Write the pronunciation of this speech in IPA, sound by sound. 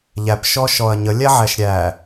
ʎæpʃɔ ʃɔɐ̯ɲə lʲæʕæʃɾʲæ

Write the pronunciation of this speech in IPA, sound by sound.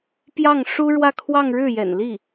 pjɑ˥˩ŋ ʂu˥ɻwä˥˧kʰwɑ˥˧ŋ ɻɻ̩˥˩jɛ̰˨˩n li˥˩

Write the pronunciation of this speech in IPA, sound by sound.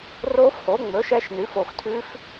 roː˦˥fhoː˩˥ŋ͡mɵː˩˥ʃ ɛ˦˥ʃnʉ˩˥f o˨xtʰʉ˦˥f

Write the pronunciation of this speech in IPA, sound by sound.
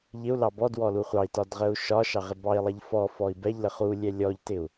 ʎɪu̯lɑ bɔdwɔlu χʷɑi̯tɒdʁəu̯ ʃɒʃɑʁɪ bɑi̯lˠɛʎ fɔfɔi̯ bɛʎlə χulʲɛ lʲɔʎtɪu̯

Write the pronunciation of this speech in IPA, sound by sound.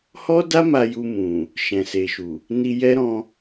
hɔ˦da˦ ma˧ju˧mũ˨ | ʃɛ̃˨se˨ʃu˨ | ni˧jɛ˦ɾɔ̃˧

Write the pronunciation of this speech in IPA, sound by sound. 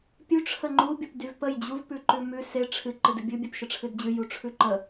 pʲʉ ʈ͡ʂʰəŋ͡ǃu bʲəpdyvpəj d͡ʑuv pʉǃʉmʉ se ʈ͡ʂʰɨ ǃɨdɨbʲɨ bʲepʃəʈ͡ʂʰɨdd͡ʑɨ juʈ͡ʂʰʉǃə

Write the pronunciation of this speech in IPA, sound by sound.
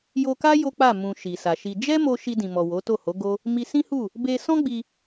jo˧ka˦ jo˦k͡pa˦˨ mũ˨ ʃi˨sa˨ʃi˧ d͡ʒɛ˦mo˧ ʃi˧dĩ˨mɔ˨ wo˨˦to˦˨ ho˨˦ɡo˦ | mi˧sĩ˦hu˦˨ | be˧ sɔ̃˦ɡ͡bi˧

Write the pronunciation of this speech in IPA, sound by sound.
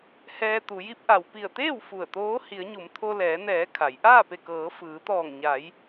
hɛː˧t̪u˩˧ji˧˥p̚ ʔa˩w pi˧˩ə̯t̪eː˥˨w fu˧˩ə̯t̪oː˧˥ hi˩˧ə̯ɲu˩˧m t̪ʰo˧lɛː˩˧ nɛː˩˧ kʰa˩˧j ʔaː˥˨pe˧˩ kɤː˩˧fɯː˩˧t̪ɔː˧˩ŋ ɲa˩˧j

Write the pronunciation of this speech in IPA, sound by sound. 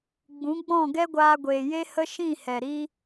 ɡ͡bũ˨˦ɡ͡bɔ̃˦˨ ɡɛ˦ɡʷaː˧ɡʷeː˨je˦ hə˦ʃĩ˦˨ hɛ˨ ɾi˦

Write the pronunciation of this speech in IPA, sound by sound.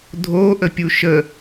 dʱoʔəpʲu ʃə

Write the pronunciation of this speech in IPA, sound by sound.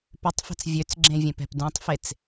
pʏtˤfɛ̤t͡s vʲøt͡sɡ͡ǁẽvʲẽpɛ̤p dũtˤfet͡s

